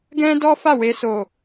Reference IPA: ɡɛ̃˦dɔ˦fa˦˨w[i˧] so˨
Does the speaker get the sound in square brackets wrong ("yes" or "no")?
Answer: yes